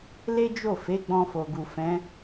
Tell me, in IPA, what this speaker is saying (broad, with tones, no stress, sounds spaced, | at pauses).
l e˦ d͡ʒ o˦˨ f e˨˦ ɡ͡b ɔ̃˧ f o˨ ɡ u˨ f ɛ̃˨˦